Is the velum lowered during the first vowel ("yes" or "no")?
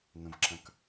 yes